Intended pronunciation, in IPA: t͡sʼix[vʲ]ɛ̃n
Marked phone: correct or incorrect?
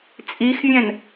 correct